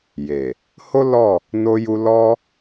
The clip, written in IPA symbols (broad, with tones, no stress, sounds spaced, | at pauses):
j e˨ | h o˦ l ɔ˦˨ | n o˦ j u˦ l ɔ˦